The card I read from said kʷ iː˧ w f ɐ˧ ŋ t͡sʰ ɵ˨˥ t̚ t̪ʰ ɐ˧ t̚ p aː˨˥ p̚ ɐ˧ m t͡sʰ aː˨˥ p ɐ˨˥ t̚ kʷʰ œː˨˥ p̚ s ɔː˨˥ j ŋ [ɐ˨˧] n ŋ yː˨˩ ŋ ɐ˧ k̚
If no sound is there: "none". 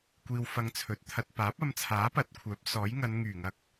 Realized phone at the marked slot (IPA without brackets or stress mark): ɐ˨˧